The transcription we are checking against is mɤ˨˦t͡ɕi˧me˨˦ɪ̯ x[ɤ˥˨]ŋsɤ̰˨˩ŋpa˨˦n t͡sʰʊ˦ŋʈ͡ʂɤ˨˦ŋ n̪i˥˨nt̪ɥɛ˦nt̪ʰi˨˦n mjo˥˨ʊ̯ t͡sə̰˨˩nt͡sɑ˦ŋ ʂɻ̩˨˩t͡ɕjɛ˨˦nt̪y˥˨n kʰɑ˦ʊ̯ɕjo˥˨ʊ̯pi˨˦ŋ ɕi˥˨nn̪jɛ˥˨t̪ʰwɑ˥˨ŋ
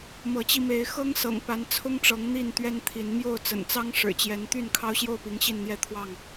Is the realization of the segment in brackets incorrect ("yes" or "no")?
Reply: yes